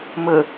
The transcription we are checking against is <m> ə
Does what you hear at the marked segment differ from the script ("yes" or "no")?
no